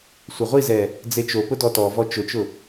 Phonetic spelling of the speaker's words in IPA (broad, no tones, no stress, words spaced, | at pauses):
sʷɪʁʷizɛ | d͡zet͡ʃopʊ dɔtɔvɔ t͡ʃʊt͡ʃʊ